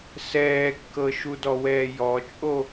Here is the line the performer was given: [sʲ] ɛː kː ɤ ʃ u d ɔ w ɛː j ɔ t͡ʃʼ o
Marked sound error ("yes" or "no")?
yes